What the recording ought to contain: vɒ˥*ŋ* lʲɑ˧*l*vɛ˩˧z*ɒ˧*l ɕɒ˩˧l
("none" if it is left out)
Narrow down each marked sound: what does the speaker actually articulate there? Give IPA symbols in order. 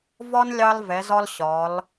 n, l, ɒ˧

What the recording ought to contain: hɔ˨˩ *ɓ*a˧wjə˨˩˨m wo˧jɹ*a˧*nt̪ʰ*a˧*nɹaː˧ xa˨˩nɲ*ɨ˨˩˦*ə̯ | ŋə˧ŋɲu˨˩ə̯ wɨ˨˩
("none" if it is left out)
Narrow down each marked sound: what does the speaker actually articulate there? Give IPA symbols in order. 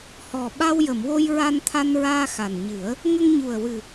ɓ, a˧, a˧, ɨ˨˩˦

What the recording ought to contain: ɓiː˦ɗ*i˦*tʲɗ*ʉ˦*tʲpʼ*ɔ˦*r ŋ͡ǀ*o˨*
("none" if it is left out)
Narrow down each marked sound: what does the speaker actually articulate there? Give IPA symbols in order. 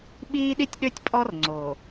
i˦, ø˦, ɔ˦, o˨

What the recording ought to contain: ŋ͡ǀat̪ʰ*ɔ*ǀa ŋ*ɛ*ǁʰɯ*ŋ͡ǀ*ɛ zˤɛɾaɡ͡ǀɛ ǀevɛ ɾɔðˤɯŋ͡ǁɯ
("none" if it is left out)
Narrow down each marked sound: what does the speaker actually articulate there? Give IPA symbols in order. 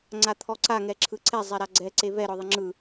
ɔ, ɛ, ǀ

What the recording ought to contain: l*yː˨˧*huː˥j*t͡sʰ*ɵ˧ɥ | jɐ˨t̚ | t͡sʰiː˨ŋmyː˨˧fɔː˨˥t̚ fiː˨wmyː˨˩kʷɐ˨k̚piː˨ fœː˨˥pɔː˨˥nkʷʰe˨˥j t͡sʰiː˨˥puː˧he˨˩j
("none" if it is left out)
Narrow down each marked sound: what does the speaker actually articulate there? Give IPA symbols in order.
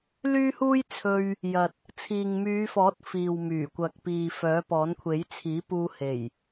yː˥, t͡sʰ

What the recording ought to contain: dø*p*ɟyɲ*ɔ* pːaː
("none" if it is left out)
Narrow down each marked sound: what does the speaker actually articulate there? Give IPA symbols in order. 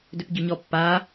p, ɔ

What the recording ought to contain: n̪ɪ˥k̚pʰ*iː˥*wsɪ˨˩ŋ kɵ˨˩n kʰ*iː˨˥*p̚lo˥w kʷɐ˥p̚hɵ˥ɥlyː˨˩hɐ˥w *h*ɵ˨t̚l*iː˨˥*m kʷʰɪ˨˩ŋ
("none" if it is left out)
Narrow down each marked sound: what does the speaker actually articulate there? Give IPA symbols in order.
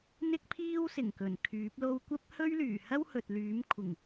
iː˥, yː˨˥, h, yː˨˥

